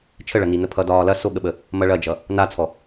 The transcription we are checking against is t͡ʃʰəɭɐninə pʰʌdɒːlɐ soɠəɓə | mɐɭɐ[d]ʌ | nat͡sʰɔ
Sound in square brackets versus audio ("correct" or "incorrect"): incorrect